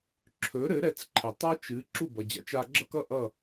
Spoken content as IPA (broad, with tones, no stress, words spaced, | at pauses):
ǁʰɵ˩˥ɾɘ˩˥ ɾɛ˧t͡sǃʰɘ˩tˤa˥t͡ʃɨ˩˥ ǁu˥˩bʌ˩ d͡ʑa̰˩˥t͡ʃa˧ɡ͡ǁʌ˥k ʌ˥ʔʌ˥˩